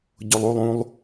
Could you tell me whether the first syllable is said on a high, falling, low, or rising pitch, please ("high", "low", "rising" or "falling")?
low